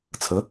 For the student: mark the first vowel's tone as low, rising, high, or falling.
rising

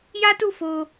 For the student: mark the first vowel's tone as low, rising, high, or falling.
high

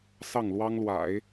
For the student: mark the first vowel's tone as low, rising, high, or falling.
falling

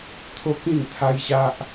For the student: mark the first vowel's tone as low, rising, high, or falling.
high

